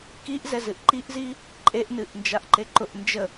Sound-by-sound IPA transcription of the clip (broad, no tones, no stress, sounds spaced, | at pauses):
k i ʔ z ɛ z ɨ ʔ ǃ i ʔ z i | ǃʼ e ʔ n ɨ ʔ n d͡ʒ a ʔ ǃ e ǃ ʊ ʔ n d͡ʒ ə